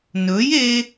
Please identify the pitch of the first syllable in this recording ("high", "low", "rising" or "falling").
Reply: rising